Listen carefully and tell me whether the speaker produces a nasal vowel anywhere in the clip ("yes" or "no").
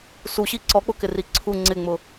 no